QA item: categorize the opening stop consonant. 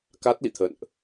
plain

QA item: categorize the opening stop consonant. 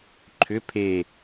click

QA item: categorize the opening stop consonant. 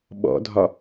implosive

